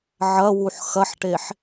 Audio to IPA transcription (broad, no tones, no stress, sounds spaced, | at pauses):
ʕ ɐ w u ħ x ɐ ħ ʈ e ħ